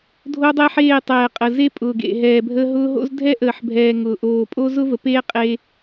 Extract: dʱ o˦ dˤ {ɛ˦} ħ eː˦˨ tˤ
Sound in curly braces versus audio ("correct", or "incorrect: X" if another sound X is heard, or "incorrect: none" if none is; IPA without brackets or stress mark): correct